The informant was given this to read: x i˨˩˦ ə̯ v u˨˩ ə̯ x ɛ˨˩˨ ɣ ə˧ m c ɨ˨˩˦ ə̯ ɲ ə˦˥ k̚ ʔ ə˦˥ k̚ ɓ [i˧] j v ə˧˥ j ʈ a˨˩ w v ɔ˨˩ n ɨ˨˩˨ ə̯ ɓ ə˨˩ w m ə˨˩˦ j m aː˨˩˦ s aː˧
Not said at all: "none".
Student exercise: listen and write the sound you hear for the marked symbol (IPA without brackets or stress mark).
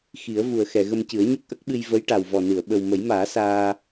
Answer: ɨ˧